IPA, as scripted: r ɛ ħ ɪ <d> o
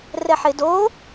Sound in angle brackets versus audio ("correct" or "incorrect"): correct